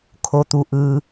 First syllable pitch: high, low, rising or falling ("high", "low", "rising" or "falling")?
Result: rising